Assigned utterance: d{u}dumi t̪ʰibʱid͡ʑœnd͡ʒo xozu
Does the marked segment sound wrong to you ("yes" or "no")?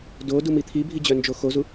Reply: yes